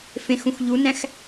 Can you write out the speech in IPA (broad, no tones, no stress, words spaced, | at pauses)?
fẽxũx ʎunæ̃x